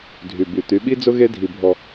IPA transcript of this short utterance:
dʱy˨by˨ t̪y˨˦ɓi˦d͡zʊ˦ ɣe˦dʱi˨bʱɔ˨

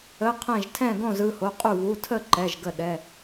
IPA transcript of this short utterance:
ə˧˥˧qʰɛ̃˥˨ʒ tʰɛ̃˥˨ɡõ˥˨z ɯ˧˥˧ho˧˥˧ qʼu˥˨βu˧˥˧ tʰə˥˨ ǃɛ˧˥˧ʒɡə˥˨ɗɛ˧˥˧

